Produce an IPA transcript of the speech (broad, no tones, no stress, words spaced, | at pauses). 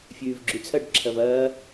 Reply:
fʲʉːvɡ͡ǁʉt͡sʰɐɖ ǁʰɐvɐː